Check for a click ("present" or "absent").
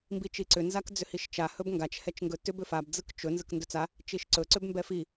present